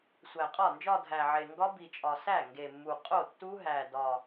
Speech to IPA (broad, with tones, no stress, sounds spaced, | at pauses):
sʷ æ˨˩ qʼ ɒ˥˩ n d͡ʒ ɒ˥˧ dʱ æ˨˩ ʕ e˨˩ ŋ ɡ ɒ˦˥ b i˨˩ t͡ʃʼ ɒ˨˩ s æ˥˩ ŋ ɡ e˨˩ mː u˨˩ qʼ o˥˩ tː u˦˥ ɦ æ˨˩ d ɒ˨˩